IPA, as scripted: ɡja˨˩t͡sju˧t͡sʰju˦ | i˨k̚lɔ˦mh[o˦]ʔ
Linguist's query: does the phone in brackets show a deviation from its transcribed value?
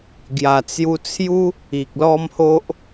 no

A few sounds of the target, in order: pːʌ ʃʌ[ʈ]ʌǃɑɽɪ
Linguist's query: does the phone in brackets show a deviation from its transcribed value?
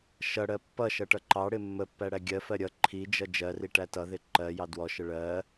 no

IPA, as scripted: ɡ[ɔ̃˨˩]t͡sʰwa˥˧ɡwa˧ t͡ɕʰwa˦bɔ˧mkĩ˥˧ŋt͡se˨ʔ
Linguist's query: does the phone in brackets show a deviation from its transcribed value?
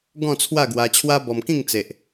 yes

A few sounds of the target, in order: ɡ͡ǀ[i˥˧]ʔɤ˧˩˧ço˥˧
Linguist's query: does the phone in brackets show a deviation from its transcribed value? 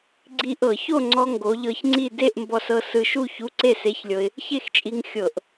yes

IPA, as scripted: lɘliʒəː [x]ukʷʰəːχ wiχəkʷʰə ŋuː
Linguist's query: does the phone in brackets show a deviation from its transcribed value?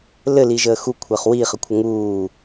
no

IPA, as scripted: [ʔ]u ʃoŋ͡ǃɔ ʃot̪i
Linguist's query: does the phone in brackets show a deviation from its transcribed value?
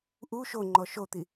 no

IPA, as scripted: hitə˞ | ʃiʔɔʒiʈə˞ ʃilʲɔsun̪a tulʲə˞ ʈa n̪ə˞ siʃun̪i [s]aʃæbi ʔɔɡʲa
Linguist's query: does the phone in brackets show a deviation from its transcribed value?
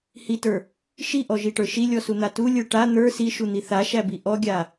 yes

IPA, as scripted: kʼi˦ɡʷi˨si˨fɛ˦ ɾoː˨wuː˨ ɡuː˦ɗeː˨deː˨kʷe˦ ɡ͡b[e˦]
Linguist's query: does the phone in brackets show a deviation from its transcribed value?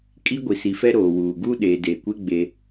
no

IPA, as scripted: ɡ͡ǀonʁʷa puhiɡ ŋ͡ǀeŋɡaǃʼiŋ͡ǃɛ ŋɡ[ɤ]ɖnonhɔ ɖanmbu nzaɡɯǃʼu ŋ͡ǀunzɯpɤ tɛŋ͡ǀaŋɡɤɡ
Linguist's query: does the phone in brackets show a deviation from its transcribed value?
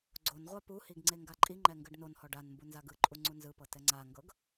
yes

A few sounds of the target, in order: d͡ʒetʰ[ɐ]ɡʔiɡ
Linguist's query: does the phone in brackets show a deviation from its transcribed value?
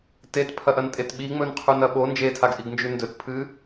yes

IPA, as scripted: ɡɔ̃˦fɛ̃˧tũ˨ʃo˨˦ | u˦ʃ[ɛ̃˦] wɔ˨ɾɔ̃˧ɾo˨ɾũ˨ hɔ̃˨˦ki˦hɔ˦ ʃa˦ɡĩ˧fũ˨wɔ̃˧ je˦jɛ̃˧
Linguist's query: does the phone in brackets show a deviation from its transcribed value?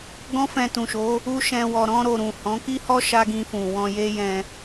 yes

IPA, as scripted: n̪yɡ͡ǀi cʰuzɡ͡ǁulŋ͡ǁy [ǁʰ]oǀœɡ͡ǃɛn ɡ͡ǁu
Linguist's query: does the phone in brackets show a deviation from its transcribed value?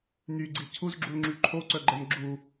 yes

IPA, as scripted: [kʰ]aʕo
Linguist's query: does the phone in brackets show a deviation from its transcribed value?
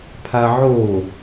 yes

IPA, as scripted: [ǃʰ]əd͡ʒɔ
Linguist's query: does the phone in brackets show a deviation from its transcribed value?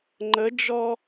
yes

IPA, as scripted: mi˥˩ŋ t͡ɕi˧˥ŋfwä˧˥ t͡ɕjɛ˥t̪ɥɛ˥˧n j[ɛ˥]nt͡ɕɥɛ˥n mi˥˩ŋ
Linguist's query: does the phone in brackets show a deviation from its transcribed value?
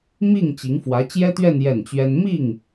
yes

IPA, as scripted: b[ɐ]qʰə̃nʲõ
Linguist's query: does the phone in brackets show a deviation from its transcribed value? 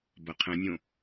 no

